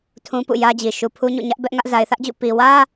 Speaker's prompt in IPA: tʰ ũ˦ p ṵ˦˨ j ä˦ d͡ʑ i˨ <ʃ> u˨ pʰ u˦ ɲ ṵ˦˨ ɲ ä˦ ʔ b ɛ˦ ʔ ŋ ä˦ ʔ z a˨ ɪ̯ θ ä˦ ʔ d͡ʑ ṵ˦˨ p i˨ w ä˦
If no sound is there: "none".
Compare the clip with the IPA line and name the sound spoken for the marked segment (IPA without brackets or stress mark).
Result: ʃ